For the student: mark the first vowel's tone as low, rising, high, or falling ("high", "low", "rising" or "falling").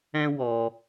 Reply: high